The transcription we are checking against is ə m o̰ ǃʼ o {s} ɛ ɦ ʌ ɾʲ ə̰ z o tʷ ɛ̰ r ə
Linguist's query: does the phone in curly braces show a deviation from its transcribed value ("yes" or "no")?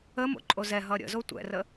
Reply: yes